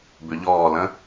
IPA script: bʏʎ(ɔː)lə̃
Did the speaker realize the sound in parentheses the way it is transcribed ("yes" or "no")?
yes